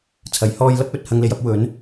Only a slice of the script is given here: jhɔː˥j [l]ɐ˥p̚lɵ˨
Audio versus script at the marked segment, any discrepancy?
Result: no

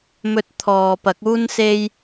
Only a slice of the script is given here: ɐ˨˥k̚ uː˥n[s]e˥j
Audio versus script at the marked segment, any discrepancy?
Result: no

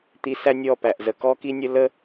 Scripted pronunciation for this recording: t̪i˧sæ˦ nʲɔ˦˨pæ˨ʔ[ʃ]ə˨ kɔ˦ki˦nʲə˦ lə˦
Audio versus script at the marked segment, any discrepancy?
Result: yes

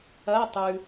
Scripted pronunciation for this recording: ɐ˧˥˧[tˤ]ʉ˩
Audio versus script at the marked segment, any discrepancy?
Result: no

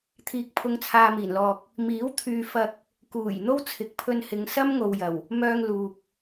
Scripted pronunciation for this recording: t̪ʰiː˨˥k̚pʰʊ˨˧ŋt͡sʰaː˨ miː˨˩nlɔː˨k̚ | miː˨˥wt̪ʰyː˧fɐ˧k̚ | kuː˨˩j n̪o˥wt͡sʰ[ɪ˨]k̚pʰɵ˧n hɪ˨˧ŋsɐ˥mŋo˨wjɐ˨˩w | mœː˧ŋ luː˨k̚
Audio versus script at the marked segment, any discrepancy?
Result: no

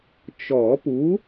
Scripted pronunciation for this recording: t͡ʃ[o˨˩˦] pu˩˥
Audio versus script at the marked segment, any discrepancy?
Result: yes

